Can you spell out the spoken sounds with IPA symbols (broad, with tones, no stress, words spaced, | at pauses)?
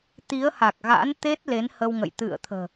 t̪i˨˦ə̯ha˨˩k̚ɣa̰˧˥n t̪e˦˥t̚le˨˦n hə˧wŋə̰˧˨j t̪ɨ̰˧˨ə̯t̪ʰə̤ː˨˩